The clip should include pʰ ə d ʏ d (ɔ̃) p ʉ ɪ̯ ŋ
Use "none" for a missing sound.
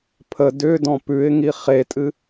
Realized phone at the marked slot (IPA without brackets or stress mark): ɔ̃